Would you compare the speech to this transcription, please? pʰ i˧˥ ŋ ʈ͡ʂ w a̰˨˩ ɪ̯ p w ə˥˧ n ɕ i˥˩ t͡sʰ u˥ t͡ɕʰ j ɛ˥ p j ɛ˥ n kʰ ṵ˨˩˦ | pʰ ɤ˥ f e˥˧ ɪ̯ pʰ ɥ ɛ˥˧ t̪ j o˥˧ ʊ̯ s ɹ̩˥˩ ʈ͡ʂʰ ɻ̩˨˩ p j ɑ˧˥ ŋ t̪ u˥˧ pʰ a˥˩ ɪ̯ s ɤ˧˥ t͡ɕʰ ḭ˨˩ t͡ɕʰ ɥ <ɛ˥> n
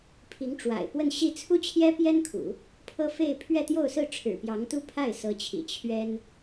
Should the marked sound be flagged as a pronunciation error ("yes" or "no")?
no